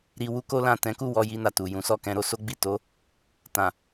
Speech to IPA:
ɾi˧ wu˦ko˦lã˦˨ tɛ̃˨˦ku˦˨ wɔ˧ji˧ na˨tu˨jũ˨˦sɔ˦˨ kɛ̃˧ɾo˦so˦ ɡ͡bi˦˨to˨˦ | tã˨

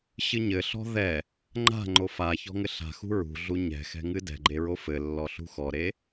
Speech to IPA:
ɕɨɲɘɬɔ̤ ðɛ | ŋ͡ǃa̤ŋ͡ǃo fa çɔ̤ŋɘɬa̤xṳ ɹṳɮu ɲɛ̤xɛ̤ ŋɨdɛ̤ɡ͡ǃe ɹofɘlːɔ ɬṳxɔɾe

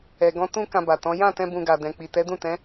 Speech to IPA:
ɛ˨ɡɔ̃˧ tũ˦ kã˧ba˨tɔ̃˨˦ jã˦˨tɛ̃˧ bũ˧ɡa˨dɛ̃˨ k͡pi˨tɛ˨˦dũ˦˨tɛ̃˨˦

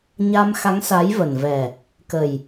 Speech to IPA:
ɲa˧mxa˨˦ŋsa˨˦jvə˨˩n vɛ˨˩ | kə˨˩j

